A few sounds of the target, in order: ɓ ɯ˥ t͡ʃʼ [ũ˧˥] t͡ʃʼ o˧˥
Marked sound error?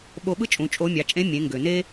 yes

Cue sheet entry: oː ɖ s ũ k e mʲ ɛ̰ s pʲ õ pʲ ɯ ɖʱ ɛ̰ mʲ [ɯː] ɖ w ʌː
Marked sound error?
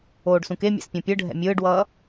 no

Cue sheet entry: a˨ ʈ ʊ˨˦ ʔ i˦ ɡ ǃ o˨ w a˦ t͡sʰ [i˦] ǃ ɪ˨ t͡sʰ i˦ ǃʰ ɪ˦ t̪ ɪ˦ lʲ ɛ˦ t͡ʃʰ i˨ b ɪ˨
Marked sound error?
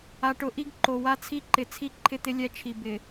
no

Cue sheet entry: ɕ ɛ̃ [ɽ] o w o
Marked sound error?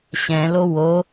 yes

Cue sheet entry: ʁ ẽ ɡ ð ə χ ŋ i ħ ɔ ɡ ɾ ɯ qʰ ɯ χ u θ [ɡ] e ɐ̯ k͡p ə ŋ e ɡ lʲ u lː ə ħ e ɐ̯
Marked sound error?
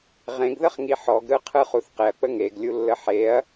yes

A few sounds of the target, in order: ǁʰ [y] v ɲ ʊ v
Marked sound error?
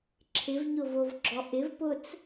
yes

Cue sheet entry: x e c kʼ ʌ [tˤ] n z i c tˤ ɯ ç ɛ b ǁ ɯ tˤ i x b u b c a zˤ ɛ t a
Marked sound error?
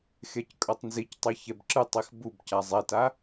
no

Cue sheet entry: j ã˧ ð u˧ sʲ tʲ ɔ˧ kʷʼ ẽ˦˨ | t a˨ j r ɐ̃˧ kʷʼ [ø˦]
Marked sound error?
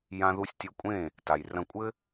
yes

